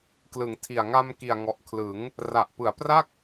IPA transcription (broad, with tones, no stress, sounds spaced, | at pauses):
k l ɯ˩˦ ŋ tʰ i˨˩ a̯ ŋ a˧ m k i˨˩ a̯ ŋ ɔ˨˩ ʔ kʰ l ɯ˩˦ ŋ | r a˨˩ ʔ p ɯ˩˦ a̯ p r a˥˩ k̚